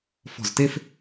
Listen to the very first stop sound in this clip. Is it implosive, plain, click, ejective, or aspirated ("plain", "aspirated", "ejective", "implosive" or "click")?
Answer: plain